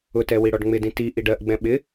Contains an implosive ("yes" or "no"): yes